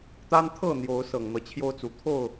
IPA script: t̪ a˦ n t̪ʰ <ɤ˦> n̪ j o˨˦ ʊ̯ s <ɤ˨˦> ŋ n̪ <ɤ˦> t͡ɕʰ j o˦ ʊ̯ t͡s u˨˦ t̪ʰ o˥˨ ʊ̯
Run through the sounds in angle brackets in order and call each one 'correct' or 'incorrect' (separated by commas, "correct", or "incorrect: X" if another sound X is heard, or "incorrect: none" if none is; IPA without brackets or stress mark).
incorrect: ɤ˥˨, incorrect: ɤ˨˩, incorrect: ɤ˨˦